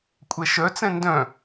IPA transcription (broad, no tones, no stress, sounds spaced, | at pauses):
kʷʼ ɛ ʃ œ t͡s ɛ̃ n d œ̃